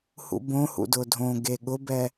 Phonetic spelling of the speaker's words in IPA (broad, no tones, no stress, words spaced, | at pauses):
hṵbõhṵ dʊdʱõɡe ɠʊbɛ